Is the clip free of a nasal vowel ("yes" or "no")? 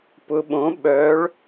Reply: no